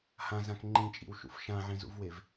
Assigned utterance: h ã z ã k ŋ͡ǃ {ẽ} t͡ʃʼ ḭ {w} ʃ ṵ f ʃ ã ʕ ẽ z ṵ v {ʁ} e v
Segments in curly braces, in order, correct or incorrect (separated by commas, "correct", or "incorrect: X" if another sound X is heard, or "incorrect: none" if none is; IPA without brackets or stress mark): incorrect: ĩ, correct, incorrect: w